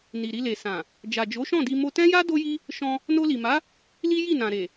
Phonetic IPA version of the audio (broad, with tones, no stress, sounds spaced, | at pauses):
n i˨ ɾ i˧ l e˨ s ã˨ | d͡ʒ a˨ d͡ʒ o˨˦ ʃ ɔ̃˦˨ d i˧ m o˧ t ɛ̃˦ j a˦ d o˦ j i˦ | ʃ ɔ̃˧ | n o˧ l i˨ m a˨˦ | l i˦ j i˦˨ n ã˨ ɾ e˨